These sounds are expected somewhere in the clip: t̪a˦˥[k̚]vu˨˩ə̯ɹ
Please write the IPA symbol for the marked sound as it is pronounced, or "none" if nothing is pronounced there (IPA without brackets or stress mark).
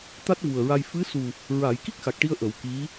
t̚